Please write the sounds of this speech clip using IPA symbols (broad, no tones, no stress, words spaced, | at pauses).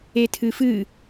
etʰɨfɨ